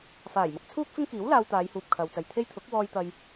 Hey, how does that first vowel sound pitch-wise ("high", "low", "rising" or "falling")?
low